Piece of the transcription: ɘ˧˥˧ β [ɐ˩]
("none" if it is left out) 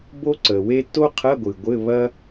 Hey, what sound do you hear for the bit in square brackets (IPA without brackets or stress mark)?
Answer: ɐ˥